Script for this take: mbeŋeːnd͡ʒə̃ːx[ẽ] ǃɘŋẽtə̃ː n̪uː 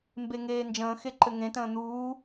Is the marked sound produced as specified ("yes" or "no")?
no